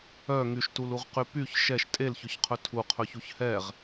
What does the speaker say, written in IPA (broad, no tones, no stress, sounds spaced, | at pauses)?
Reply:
œ ŋ y ʃ t u l u ʁ q y p y ç ʃ ɛ ʃ tʼ e l ç ɵ ç qʰ ɵ tʰ u qʰ ɵ ç u ç h ɛ ʁ